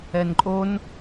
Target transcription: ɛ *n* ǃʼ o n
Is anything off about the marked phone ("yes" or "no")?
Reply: no